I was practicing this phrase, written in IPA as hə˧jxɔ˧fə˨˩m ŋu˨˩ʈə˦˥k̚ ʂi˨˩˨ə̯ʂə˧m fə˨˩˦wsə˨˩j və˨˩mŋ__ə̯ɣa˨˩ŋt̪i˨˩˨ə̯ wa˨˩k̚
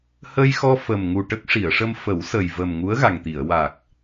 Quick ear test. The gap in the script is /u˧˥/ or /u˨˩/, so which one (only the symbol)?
u˧˥